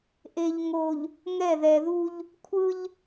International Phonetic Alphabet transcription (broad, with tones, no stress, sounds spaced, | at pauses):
ʔ e˨ ʎ ŋ o˨ ʎ | ŋ ɛ˦˨ ð ɛ˨ ð u˦ ʎ | kʷʰ ɯ˦ ʎ